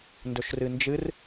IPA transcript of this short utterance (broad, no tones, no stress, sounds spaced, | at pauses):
n d ɵ ʃ r ɨ n d͡ʒ ɨ r